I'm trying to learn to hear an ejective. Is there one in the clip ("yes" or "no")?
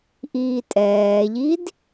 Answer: yes